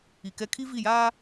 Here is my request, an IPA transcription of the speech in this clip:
i˨ k ɛ˦ kʰ i˦ v i˦˨ j aː˦

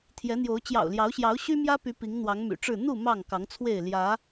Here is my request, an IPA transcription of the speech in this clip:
t̪ʰ j ɛ˨˦ n̪ j o˨˦ ʊ̯ t͡ɕ j ɑ̰˨˩ ʊ̯ l j ɑ˨˦ ʊ̯ ɕ j ɑ˨˦ ʊ̯ ɕ y˦ m j ä˦ p y˨˦ p i˨˦ ŋ n̪ w ɑ˨˦ ŋ m y̰˨˩ ʈ͡ʂ ɻ̩˥˨ n̪ u˥˨ m ɑ˥˨ ŋ k ɑ˨˦ ŋ t͡sʰ w e˥˨ ɪ̯ l j ä˨˦

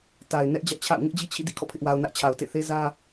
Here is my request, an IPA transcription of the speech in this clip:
t a˨ ɪ̯ n ɛ˦ ʔ d͡ʑ ä˦ ʔ t͡ɕʰ a̰˦˨ ʊ̯ ŋ ɪ˦ ʔ d͡ʑ i˦ t͡ɕʰ ḭ˦˨ d ḭ˦˨ kʰ ɔ̰˦˨ pʰ ɪ˦ ʔ w a˦ ʊ̯ n ä˦ ʔ t͡ɕʰ a˨ ʊ̯ t ḛ˦˨ θ e˦ z ä˦

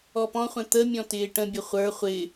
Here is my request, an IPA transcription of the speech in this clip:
ɔ p ɔ̃ χʷ ɛ̃ t̪ ə mʲ ɔ̃ t ɪː ʈ ə̃ bʲ ə χʷ ə˞ χʷ ɪ

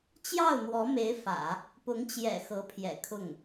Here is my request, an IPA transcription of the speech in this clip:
t͡ɕ j ɑ˥˩ ʊ̯ n̪ w ɔ˧˥ m e˧˥ ɪ̯ f ä̰˨˩˦ | p ʊ˧˥ ŋ t͡ɕ j ɛ̰˨˩ x ɤ˧˥ pʰ j ɛ̰˨˩ kʰ ʊ˥˩ ŋ

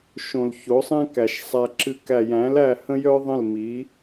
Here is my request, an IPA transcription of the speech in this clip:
ʃ õ˨ l ç o˨˦ sˤ æ̃˦ k æ˨ ʃ sˤ æ˧ ǁ ɨ˧ k æ˨ j æ̃˨˦ l æ˦˨ h ə̃˦ j œ˦ ðˤ ə̃˦˨ l m i˨˦

